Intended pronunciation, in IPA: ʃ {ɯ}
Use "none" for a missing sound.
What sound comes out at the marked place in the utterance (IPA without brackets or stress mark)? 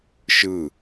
ɯ